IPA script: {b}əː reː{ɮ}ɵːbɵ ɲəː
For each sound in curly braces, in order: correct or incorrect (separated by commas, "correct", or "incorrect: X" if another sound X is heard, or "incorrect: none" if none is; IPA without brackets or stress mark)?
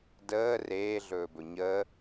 incorrect: d, correct